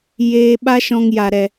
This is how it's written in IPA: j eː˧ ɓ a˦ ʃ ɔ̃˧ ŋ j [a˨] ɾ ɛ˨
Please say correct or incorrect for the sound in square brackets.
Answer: correct